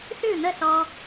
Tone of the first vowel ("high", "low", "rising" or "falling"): falling